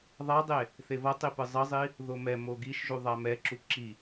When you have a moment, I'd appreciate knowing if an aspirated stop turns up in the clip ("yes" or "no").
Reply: no